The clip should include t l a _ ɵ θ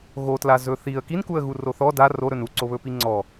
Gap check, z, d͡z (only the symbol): z